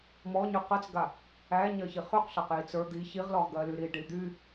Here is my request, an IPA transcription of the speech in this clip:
m ɔ ɲ y q ɜ t͡s ɡ a | æ ɲ ɜ ç i χ y q ɬ ɜ q j i t͡s ə˞ d̪ i ç i ʁ l ɔ ʁ ɡ ɜ l y ɾ i ɖ i d̪ y

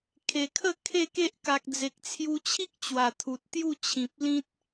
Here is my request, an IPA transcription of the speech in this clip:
kʰ e˨˩ kʰ ə˥˧ kʰ e˥˧ k e˦ ʔ k a˨ k̚ d͡z e˨ k̚ t͡sʰ j u˧ t͡ɕʰ i˦ k̚ t͡ɕ w a˨˩ t̪ʰ u˨ t̚ t̪ j u˥˧ t͡ɕʰ ĩ˨ p̚ l ĩ˦ t̚

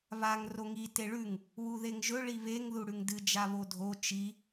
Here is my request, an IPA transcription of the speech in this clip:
β a ŋ r o ŋ i t e ɭ ʉ ŋ | w u ð e ŋ ʒ ɵ ɭ i β e ŋ ð u ɽ ʉ ŋ d ɨ d͡ʒ a β o dʱ o t͡ʃ i

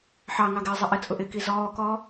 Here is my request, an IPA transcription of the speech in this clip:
ħ ɑ ŋ ɑ ɡ ɪː zˤ ɪ ʔ ɪ t͡sʼ ʊ ʔ ɪ k i z ɔː k ɔː

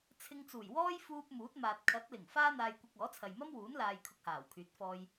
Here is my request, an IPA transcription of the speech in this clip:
t͡sʰ ɪ˧ ŋ t͡s uː˨˩ j w ɔː˥ j f uː˧ p̚ m uː˨˥ t̚ m aː˨ t̚ kʰ ɐ˨˥ t̚ l ɪ˨˩ ŋ f aː˥ n̪ aː˧ j kʷ ɐ˧ k̚ ɔː˨˥ t͡sʰ ɐ˨ j m ɐ˥ m w uː˨˥ n l aː˧ j kʰ ʊ˧ k̚ h aː˨˩ w kʰ yː˨˥ t̚ f ɔː˧ j

